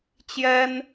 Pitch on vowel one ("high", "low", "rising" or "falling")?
high